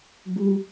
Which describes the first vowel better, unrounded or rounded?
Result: rounded